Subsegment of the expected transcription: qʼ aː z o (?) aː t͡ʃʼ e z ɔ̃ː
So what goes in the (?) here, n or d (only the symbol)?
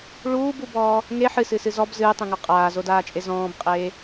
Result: d